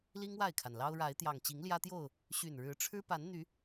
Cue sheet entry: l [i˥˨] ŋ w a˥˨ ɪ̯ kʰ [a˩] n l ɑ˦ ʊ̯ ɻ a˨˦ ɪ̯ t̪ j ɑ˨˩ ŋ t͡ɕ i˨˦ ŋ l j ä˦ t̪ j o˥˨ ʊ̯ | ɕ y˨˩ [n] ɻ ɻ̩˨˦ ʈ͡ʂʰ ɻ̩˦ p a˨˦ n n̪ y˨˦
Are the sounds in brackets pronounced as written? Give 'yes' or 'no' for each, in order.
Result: no, yes, yes

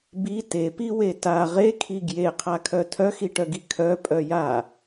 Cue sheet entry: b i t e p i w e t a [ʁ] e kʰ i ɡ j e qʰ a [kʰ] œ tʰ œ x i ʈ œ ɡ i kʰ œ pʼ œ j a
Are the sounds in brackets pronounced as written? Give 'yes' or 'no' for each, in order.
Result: yes, yes

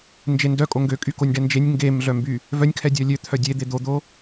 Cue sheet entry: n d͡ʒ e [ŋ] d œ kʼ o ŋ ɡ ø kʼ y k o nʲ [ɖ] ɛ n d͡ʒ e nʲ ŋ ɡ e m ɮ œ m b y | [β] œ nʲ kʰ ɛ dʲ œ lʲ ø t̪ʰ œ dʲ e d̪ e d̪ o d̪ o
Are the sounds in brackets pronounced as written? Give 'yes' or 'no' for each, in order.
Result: no, yes, no

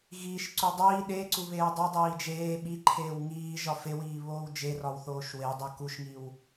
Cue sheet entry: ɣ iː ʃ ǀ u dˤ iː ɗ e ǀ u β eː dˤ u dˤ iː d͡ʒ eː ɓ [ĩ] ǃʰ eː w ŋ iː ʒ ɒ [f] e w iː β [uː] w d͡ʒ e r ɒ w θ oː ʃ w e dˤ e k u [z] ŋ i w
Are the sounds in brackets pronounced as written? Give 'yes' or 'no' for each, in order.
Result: no, yes, no, no

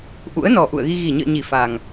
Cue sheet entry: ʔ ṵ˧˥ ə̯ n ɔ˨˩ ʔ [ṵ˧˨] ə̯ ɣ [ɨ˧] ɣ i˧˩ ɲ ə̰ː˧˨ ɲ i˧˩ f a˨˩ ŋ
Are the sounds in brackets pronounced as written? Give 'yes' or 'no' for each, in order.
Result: yes, no

